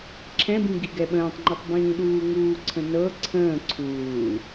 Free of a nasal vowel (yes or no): no